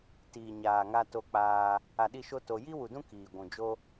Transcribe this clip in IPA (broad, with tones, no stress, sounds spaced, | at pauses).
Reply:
t iː˨ ɲ aː˨ ŋ a˦ t o˧ k͡p aː˧ | a˧ ɗ i˦˨ ʃ o˦ t o˧ j i˦ w u˨ d ũ˦ k iː˨ ɡʷ ũ˨ d͡ʒ o˦